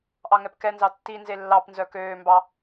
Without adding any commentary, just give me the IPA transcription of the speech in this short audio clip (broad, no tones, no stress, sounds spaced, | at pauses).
ʔ ɑ ŋ ɛ p k ɛ n z ɑ tː i n z e lː ɑ p n z œ k øː m b ɑ